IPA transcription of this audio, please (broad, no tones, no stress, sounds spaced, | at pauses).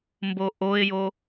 m b o ʔ o ɪ̯ j o